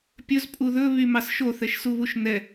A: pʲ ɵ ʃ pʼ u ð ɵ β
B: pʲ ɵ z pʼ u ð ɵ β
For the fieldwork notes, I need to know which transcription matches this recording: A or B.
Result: B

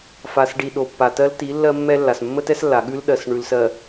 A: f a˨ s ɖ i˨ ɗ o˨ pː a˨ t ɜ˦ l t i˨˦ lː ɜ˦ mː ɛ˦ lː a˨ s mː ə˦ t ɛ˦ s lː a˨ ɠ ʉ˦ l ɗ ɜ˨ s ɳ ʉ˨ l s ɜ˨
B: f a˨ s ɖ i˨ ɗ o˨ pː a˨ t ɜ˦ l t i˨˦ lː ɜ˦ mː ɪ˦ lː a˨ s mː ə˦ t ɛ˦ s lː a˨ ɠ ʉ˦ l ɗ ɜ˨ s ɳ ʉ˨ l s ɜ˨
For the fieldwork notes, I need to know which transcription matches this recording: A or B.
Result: A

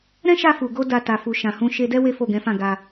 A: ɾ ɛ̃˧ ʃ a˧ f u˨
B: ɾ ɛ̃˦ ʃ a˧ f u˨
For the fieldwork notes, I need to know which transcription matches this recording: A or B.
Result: B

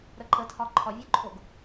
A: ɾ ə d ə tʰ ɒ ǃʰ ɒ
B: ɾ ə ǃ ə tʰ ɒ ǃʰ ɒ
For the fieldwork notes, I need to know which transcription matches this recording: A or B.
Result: B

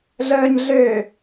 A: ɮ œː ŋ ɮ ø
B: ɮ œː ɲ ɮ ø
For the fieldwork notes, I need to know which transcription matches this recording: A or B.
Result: B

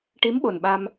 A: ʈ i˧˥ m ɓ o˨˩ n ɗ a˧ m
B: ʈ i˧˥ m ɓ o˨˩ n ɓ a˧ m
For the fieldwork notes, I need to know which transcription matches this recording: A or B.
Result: B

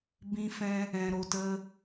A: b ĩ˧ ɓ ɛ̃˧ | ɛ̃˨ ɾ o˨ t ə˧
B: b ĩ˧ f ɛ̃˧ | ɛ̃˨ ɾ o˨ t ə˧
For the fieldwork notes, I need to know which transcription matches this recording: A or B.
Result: B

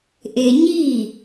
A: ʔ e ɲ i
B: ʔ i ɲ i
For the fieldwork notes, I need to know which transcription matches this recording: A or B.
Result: A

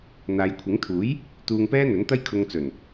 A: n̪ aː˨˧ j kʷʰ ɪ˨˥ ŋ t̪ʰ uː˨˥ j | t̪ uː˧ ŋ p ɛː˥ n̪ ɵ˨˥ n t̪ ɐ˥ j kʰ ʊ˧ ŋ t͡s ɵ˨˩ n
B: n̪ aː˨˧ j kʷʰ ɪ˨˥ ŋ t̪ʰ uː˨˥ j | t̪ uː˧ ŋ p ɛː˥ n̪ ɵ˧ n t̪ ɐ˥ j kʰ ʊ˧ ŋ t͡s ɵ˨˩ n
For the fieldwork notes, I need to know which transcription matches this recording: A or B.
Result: A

